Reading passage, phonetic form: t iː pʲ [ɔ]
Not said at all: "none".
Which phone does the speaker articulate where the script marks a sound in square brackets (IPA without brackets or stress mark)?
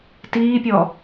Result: ɔ